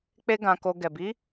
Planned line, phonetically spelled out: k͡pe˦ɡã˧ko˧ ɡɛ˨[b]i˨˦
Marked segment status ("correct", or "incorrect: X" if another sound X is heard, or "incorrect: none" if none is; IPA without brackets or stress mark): correct